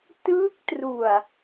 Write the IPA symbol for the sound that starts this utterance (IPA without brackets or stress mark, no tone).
t